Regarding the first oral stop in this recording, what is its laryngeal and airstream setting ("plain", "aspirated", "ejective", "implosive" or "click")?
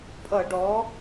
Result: ejective